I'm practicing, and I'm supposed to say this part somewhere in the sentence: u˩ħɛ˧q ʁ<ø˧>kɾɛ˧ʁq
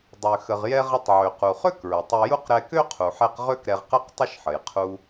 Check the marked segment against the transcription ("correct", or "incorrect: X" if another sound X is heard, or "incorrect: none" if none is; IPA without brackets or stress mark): incorrect: ø˥